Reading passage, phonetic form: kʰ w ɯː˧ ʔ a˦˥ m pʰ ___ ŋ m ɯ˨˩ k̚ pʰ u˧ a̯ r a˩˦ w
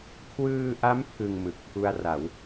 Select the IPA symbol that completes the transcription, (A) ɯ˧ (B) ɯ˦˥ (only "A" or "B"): A